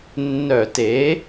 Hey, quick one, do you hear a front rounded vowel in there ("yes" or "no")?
yes